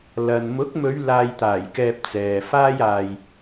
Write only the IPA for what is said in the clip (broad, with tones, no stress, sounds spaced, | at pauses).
l ɐ˨ n m ʊ˨˥ k̚ m ɵ˨˧ ɥ l aː˨ j t̪ aː˨˩ j k ɛː˨ p̚ t͡s ɛː˨ f aː˧ j aː˨ j